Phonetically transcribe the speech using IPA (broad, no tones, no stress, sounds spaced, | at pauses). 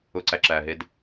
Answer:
ʊ ǀ æ ǁ æː ɦ e d